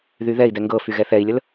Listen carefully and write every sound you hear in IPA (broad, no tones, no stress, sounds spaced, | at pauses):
ð y ð ɛ i̯ d ɛ ŋ ɡ ɤ f y ɣ ɛ θ ɛ i̯ lʲ ə l